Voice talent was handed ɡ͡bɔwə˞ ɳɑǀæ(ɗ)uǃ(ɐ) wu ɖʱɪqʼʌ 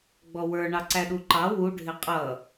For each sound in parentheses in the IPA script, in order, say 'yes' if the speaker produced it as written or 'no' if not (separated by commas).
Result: yes, no